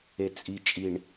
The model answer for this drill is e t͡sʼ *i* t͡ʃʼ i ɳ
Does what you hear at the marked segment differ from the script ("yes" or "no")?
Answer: no